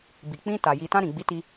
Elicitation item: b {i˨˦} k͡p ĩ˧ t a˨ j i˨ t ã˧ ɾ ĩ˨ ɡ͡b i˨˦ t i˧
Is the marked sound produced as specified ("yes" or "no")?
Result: no